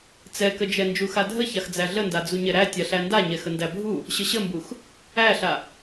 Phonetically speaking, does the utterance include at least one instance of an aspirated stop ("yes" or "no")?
no